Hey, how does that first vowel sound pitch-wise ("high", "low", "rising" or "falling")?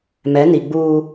rising